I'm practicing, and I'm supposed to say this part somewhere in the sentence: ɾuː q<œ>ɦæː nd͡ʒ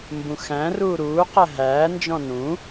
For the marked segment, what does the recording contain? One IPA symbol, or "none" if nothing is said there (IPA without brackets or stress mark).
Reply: æ